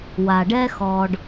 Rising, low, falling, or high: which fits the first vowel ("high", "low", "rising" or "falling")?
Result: low